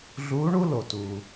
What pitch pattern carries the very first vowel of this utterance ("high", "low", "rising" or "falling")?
rising